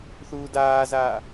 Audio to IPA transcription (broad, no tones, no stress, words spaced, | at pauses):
θuːdaːzaː